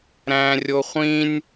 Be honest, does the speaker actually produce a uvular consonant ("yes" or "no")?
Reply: yes